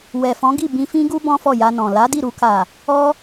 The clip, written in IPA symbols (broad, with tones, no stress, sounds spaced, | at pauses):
w ɛ˨ f ɔ̃˨˦ ɡ i˦˨ b ĩ˧ f ĩ˦ ɡ u˦ b ɔ̃˦ f ɔ˦˨ j a˧ n ɔ̃˨ l a˨˦ d i˦˨ ɾ u˧ k a˨ | ɔ˧